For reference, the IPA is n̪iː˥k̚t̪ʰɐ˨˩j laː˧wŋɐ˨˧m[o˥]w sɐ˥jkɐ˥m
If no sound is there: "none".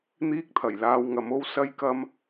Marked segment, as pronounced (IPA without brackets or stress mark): o˥